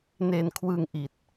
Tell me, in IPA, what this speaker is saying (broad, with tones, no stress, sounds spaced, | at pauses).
n e˧ n kʰ w ɯ˧ ŋ ʔ i˨˩ t̚